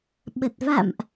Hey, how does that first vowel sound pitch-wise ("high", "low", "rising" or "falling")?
low